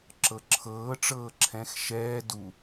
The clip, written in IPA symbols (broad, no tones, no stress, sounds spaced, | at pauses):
ǁ ɤ ǁʰ ɤː ʈ͡ʂ ɤː ǁʰ ɛ̃ x ʃ ɛː d u